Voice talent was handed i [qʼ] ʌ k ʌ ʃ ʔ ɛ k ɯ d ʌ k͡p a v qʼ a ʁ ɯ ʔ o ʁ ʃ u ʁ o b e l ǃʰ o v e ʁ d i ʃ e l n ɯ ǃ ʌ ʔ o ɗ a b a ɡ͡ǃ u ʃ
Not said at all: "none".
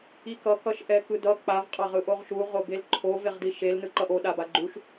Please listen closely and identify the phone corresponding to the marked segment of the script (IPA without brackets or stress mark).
k